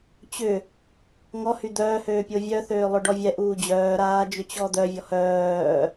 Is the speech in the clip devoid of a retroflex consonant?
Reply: no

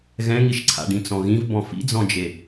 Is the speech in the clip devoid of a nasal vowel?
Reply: no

